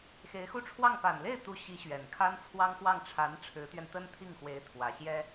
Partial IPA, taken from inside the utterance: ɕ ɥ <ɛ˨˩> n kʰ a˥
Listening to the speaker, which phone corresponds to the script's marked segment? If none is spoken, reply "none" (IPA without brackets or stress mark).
ɛ˨˩